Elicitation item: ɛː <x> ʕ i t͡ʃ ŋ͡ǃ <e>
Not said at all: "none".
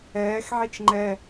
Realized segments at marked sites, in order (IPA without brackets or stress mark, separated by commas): x, ɛ